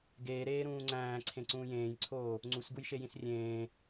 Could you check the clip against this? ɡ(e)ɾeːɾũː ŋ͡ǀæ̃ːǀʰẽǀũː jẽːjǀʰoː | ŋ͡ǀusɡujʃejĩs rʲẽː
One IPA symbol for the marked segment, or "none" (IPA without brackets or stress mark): eː